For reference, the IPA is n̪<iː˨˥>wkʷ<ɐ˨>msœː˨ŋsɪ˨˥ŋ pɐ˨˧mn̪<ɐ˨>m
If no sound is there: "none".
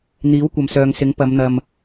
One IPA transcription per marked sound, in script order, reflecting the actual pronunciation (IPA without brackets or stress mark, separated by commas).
iː˨˥, ɐ˨, ɐ˨